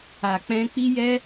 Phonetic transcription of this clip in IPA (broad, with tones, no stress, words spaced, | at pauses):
a˨k͡pɛ̃˧ k͡pi˦jɛ˦